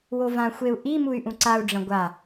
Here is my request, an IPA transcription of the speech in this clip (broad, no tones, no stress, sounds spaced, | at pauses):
w o v ã xʷ e u̯ ʔ i m u y̯ ʔ ũ ǀ a u̯ ɖ͡ʐ ɐ̃ ɡʷ a